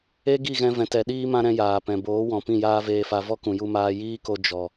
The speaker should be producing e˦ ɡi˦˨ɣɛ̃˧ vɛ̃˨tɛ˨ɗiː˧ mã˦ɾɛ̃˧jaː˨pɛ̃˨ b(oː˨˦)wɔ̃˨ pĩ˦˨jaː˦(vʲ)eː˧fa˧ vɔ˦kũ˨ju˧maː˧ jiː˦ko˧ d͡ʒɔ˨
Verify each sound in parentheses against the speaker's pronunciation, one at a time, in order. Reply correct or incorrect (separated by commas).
correct, incorrect